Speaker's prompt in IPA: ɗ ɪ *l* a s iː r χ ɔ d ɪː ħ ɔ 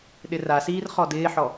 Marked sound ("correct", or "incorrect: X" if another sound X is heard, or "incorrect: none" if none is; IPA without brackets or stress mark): incorrect: r